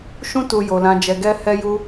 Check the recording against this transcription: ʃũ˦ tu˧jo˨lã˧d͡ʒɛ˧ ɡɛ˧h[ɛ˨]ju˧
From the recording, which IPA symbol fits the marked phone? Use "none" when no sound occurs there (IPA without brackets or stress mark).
ɛ˧